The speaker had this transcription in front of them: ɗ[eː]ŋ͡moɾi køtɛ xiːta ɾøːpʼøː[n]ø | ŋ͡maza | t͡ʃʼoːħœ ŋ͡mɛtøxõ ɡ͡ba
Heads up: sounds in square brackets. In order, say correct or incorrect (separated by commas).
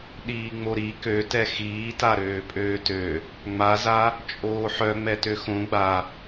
incorrect, incorrect